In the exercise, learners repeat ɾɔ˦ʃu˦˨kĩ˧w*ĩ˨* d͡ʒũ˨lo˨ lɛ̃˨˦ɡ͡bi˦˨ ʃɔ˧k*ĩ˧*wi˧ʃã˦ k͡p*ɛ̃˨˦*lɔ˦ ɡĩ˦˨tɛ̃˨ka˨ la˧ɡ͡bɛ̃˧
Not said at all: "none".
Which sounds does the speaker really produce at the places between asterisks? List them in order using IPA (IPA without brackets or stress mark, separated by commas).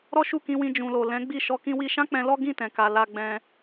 ĩ˧, ĩ˧, ɛ̃˧